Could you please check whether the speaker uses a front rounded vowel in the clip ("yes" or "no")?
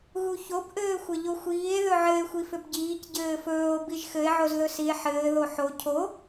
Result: yes